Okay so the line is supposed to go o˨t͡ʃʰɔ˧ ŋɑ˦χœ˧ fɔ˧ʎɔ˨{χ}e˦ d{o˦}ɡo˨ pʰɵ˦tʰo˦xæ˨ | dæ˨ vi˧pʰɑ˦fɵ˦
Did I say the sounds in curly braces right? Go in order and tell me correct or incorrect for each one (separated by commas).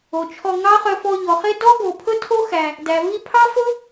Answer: correct, incorrect